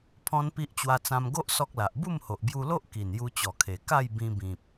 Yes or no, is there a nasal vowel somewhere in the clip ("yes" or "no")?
yes